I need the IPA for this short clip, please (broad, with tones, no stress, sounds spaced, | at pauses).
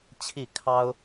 t͡ɕʰ i˥˩ kʰ ɑ˥ ʊ̯